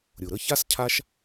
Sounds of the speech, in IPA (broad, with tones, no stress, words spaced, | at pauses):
ɾʲʊ˩ɾə˦ça˥scʰa˦ʃ